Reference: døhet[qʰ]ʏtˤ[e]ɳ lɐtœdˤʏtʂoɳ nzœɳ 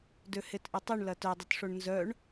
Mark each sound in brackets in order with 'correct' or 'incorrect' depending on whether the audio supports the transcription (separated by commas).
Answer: incorrect, incorrect